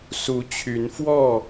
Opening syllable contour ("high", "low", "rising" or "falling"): rising